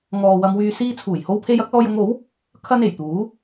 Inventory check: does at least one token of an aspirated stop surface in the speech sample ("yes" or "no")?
yes